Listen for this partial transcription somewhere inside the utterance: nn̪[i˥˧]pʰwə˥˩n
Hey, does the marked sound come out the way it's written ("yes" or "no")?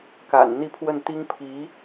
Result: yes